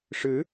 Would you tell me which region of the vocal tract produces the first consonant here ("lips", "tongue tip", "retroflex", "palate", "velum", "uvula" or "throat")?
retroflex